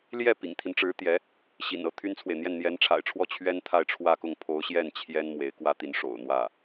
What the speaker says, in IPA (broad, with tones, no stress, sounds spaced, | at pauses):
l j ɛ˥˩ p ḭ˨˩ ŋ t̪ʰ i˦ n ʈ͡ʂ ɻ̩˧˥ t̪ j ɛ˧˥ | ɕ ḭ˨˩ n ɤ˥˩ t̪ʰ y˥ n t͡sʰ w e˨ ɪ̯ n̪ j ɛ˥˩ n n̪ j ɛ˧˥ n ʈ͡ʂʰ a̰˨˩ ɪ̯ ʈ͡ʂʰ w ɔ˥˩ t͡ɕʰ ɥ ɛ˥ n t̪ʰ a˥˧ ɪ̯ ʈ͡ʂʰ w ä˥˧ k ʊ˥˩ ŋ pʰ o˧˥ ʊ̯ ɕ j ɛ˥˩ n t͡ɕʰ j ɛ˥ n m w e˧˥ ɪ̯ k w ä˥ t̪ i˧˥ n ʂ o̰˨˩ ʊ̯ n̪ w ä˥˩